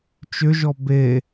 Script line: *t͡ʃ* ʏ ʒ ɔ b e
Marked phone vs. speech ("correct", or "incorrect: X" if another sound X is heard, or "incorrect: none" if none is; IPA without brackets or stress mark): correct